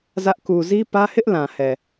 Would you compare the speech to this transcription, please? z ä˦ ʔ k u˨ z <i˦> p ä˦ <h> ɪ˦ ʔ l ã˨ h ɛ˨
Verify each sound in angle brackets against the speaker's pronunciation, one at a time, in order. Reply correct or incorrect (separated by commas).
correct, correct